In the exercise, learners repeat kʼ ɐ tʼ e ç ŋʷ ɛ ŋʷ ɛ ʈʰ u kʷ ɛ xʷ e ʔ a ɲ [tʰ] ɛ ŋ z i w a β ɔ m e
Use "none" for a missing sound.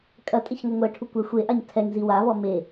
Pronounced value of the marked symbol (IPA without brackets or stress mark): tʰ